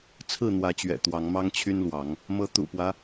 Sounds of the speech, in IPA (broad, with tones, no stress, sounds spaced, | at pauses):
t͡sʰ ɹ̩˥˨ n̪ w ä˨˦ t͡ɕ ɥ ɛ̰˨˩ t̪ w ɑ˨˦ ŋ m ɑ˦ ŋ t͡ɕʰ y˦ n l w ɑ˨˦ ŋ | m ɤ˨˦ t̪ ṵ˨˩ p w ä˦